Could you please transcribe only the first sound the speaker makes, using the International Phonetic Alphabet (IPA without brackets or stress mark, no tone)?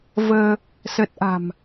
v